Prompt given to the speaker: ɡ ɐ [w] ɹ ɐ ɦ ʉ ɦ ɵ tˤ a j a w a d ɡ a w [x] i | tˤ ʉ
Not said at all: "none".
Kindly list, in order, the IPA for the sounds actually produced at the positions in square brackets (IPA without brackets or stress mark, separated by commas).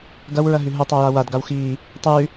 w, x